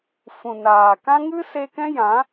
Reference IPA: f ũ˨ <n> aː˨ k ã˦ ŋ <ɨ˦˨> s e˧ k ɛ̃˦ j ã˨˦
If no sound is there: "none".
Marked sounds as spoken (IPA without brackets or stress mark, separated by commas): n, ɨ˦